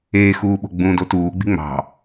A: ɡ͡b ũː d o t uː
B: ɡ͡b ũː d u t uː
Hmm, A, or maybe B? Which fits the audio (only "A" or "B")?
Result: A